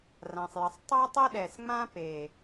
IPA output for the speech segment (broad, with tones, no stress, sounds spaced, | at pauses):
r ã˨ sˤ j ə˨ sˤ tˤ a˦ tˤ ə˦ ɗ ɛ˨ s ŋ͡m ã˦ p e˨